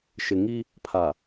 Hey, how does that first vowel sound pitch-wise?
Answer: low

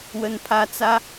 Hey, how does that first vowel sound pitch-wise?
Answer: high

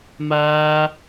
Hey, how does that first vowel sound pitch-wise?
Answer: high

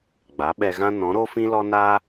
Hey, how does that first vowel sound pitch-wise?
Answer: rising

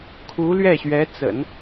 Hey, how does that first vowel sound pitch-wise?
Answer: rising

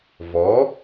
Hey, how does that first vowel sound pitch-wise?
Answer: rising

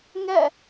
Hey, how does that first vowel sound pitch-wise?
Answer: falling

